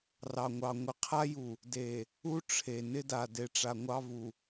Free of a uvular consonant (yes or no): no